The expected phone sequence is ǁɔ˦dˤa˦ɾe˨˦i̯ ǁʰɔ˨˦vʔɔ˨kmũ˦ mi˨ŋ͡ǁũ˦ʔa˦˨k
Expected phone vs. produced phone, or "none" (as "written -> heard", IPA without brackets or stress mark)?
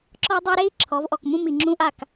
e˨˦ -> e˦